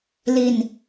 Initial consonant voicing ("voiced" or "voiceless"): voiced